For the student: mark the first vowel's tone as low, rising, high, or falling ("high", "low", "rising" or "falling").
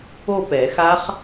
falling